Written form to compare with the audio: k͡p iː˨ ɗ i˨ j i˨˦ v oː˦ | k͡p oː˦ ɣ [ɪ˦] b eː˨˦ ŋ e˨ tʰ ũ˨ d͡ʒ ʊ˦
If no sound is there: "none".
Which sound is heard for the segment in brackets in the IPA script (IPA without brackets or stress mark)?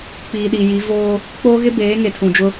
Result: ɪ˦